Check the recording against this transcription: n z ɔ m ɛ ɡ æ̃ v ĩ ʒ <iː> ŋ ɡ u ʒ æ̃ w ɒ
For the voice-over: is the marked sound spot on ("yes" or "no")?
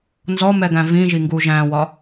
no